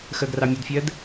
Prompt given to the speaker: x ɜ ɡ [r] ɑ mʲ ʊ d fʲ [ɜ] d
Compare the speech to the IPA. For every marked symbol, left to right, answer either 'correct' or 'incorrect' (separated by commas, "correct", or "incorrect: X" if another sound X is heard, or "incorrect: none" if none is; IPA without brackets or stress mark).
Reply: correct, correct